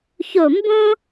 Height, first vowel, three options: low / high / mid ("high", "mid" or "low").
mid